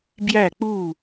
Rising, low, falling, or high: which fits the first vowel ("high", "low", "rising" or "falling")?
falling